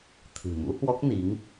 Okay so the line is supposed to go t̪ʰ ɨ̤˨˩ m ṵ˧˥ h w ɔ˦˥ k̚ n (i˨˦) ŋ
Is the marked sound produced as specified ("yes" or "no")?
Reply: yes